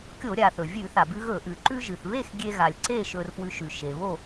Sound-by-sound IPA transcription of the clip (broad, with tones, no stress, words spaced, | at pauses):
kʲo˧˩˧ɾʲa˩ θɵ˩vʲʉ˧˩˧θa˩bʉ˧ ɣɵ˧˩˧ ʔʉ˩ ǃʉ˧ʒɨ˩θβe˥˨x ɡʲe˧ɣa˩lʲǀe˥˨ ʃɵ˧rfwʉ˧ʃʉ˩ ʃe˩βo˥˨